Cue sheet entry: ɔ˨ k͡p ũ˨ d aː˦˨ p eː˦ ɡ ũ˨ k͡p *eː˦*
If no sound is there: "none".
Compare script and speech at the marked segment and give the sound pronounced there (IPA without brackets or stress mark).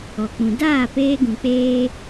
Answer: eː˦